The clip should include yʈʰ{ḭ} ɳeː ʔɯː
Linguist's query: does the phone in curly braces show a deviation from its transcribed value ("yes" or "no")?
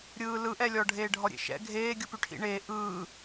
no